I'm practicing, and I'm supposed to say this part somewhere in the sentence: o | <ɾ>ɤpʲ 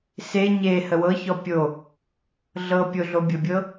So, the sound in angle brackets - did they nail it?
no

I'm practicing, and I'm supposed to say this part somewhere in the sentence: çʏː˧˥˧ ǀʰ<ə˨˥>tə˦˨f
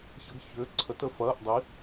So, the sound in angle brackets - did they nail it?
yes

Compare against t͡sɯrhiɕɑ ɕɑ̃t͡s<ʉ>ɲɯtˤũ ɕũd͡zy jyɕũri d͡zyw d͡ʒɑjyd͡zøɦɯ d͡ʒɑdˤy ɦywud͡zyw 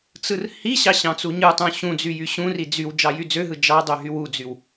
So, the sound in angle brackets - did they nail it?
no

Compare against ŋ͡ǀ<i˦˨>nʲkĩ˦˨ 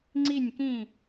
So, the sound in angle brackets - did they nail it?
yes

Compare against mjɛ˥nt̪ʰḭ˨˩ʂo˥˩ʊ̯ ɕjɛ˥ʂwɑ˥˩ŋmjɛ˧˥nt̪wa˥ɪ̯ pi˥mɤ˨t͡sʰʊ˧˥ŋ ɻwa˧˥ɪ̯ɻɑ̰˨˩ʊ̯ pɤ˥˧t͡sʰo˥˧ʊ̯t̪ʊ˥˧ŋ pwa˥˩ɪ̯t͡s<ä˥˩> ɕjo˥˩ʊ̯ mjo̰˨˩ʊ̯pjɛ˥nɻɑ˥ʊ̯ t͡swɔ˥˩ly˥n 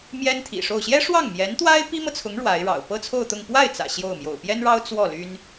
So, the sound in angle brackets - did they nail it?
no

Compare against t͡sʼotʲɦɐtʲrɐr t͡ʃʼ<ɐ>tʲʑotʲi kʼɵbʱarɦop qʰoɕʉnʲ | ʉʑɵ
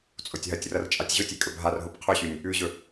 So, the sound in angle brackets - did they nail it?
no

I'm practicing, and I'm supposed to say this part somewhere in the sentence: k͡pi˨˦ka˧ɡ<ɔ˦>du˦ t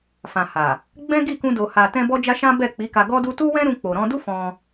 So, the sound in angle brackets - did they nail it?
yes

